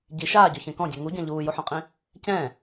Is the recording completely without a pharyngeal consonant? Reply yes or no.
no